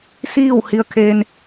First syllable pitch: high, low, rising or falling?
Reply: falling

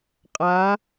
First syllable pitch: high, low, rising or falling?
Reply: rising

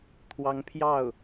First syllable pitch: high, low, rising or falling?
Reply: rising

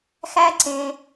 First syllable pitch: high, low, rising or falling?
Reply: high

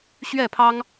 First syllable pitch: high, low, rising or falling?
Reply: falling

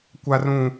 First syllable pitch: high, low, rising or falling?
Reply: high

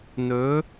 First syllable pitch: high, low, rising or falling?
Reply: rising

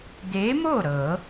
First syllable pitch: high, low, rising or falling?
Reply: rising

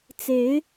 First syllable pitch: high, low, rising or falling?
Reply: rising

